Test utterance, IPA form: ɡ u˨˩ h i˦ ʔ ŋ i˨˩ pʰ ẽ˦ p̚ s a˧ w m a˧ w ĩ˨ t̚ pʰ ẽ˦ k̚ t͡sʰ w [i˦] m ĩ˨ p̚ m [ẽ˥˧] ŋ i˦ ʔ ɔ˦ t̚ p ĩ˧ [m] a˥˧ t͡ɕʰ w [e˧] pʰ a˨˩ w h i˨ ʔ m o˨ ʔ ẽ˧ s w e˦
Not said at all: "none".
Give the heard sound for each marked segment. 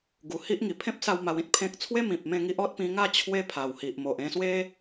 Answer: e˦, ẽ˥˧, ŋ, e˦

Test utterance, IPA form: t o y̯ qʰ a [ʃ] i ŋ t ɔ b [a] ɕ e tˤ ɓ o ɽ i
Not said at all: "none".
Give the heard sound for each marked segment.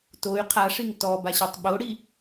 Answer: ʂ, a

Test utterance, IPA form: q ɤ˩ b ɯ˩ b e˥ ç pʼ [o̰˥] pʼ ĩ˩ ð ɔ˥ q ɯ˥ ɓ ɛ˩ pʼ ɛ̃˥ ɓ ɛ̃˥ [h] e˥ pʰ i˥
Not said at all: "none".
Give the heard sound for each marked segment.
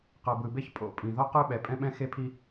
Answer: o̰˥, x

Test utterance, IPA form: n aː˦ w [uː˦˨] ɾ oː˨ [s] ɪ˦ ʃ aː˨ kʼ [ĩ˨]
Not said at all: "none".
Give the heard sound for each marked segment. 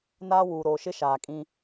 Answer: uː˨, ʃ, ĩ˦

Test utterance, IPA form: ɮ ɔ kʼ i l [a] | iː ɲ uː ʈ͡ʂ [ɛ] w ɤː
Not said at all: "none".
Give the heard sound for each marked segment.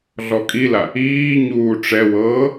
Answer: a, ɛ

